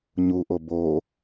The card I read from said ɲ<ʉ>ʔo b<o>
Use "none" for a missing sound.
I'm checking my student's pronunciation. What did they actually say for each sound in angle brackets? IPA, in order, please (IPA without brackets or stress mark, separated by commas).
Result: u, o